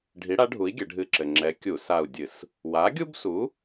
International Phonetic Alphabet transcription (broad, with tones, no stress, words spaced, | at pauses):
ɖʱi˨˥ɽa˨˥ɖʱu˨˥i̯ ɡʲɘ˩˧ɖʱɨ˧˩ǁɘ˩ ŋ͡ǁɛ˨˥kʲu˧˩˧ sa˧˩u̯dʲɨ˧˩˧s | wa˨˥ɡʲu˥bsu˨˥